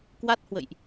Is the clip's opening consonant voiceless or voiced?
voiceless